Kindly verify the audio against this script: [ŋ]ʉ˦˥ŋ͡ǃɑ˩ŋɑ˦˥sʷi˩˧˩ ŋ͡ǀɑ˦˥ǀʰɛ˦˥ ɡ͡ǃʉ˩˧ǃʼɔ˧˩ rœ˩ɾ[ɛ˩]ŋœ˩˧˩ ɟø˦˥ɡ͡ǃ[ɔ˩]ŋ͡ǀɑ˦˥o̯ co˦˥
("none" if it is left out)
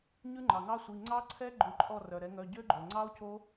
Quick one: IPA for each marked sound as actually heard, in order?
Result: ɲ, ɛ˩˧, ɵ˩

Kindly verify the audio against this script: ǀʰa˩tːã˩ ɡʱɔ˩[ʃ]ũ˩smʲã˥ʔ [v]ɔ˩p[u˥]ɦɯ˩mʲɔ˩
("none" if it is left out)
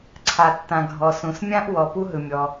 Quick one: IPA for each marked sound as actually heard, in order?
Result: s, w, u˥

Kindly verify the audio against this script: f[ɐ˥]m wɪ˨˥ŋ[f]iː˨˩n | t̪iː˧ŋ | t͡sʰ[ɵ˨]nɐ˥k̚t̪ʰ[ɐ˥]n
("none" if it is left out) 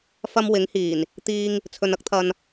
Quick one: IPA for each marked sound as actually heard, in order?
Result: ɐ˥, h, ɵ˨, ɐ˧

